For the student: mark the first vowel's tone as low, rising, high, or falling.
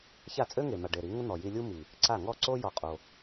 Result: falling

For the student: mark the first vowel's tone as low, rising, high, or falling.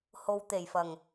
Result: low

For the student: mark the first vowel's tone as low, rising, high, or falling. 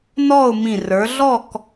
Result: falling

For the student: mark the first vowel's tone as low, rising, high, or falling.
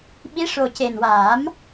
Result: rising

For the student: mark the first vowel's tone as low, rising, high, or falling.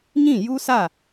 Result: falling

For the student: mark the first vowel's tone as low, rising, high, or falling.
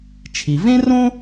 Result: low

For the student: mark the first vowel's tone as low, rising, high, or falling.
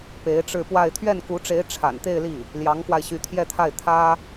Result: rising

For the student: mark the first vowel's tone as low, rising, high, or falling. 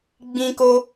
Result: high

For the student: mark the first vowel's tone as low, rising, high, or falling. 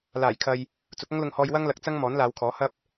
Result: low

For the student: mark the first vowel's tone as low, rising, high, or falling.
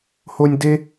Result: high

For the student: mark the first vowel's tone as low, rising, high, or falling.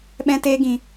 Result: high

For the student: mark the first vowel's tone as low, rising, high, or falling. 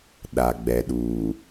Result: low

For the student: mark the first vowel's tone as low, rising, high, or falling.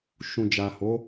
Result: low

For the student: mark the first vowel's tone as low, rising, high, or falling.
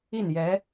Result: falling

